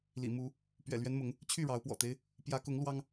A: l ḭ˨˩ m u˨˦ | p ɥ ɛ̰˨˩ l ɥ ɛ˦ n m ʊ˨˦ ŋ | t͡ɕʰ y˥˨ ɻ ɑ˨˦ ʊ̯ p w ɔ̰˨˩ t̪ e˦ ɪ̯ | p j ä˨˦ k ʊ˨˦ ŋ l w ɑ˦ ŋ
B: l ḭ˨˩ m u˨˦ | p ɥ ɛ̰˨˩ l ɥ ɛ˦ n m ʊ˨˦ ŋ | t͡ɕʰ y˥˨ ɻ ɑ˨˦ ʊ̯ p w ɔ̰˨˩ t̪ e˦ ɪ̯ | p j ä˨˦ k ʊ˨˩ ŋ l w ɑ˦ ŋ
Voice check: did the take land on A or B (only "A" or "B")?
A